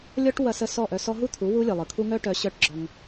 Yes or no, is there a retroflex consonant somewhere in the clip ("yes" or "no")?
yes